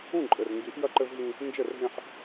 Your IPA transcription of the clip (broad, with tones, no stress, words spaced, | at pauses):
ũ˦˨ǃʼɘ˨rŋɡi˨˦ʔ jɐ˦ǃɘ˦vɦĩ˦ | nd͡ʒɘ˦˨rɦẽ˦ħ